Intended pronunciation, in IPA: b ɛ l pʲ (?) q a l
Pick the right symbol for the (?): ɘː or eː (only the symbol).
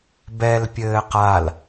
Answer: ɘː